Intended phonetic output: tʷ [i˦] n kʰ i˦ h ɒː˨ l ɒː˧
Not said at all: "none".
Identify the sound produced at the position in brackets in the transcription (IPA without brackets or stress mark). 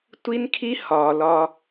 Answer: i˦